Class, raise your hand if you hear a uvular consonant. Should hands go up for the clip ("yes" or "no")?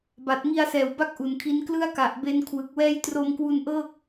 no